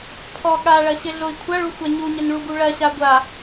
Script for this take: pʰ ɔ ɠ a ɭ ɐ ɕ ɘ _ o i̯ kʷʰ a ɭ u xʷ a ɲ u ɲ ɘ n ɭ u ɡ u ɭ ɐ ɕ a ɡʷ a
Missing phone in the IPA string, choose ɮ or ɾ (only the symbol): ɮ